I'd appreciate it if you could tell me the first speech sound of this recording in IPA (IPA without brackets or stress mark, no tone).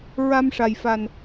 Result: ɹ